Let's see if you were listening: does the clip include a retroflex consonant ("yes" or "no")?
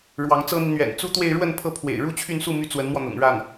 yes